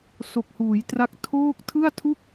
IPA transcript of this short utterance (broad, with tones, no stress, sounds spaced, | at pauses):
s o˨˩ k̚ h uː˩˦ j t r a˦˥ k̚ tʰ oː˥˩ k̚ tʰ ɯ˥˩ a̯ tʰ u˥˩ k̚